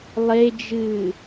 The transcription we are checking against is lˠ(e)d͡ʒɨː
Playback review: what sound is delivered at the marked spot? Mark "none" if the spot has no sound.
e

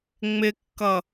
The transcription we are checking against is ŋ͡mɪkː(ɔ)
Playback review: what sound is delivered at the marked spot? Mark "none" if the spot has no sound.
ʌ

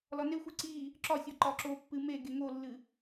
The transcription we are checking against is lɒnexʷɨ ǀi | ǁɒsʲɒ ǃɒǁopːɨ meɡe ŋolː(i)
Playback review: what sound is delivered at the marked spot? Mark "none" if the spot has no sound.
ɨ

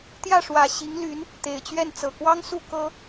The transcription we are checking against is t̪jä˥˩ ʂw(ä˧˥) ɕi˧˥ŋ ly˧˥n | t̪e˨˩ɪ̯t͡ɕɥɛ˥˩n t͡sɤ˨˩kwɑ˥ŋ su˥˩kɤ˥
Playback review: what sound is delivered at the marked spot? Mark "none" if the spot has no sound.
ä˨˩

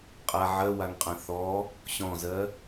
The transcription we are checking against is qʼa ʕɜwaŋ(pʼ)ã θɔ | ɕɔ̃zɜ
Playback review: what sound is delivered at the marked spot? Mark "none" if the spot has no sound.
qʼ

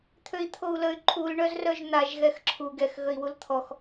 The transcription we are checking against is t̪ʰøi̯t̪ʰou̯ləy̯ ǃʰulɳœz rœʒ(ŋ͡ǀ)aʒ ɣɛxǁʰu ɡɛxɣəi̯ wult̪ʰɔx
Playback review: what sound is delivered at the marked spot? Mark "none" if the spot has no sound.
n̪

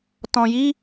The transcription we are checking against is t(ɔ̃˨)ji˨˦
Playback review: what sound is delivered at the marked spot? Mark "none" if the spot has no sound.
ɔ̃˨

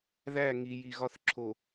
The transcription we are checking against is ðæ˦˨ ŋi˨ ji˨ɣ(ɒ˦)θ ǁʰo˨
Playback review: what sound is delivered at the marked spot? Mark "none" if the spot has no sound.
ɒ˦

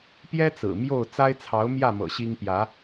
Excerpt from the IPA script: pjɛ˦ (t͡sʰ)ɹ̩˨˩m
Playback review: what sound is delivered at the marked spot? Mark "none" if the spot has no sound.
t͡s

